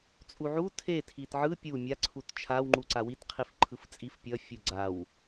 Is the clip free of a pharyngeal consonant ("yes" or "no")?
no